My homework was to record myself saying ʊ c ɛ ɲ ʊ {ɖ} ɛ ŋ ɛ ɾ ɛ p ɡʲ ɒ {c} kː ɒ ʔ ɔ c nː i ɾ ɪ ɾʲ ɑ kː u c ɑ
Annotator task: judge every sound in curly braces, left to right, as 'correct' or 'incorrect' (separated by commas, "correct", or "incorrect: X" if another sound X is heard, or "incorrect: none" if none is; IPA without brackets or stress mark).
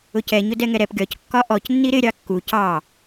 incorrect: d, correct